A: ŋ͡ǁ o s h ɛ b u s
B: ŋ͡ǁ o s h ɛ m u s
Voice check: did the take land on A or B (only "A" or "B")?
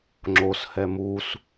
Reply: B